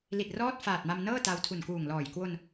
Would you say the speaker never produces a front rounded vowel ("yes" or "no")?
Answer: yes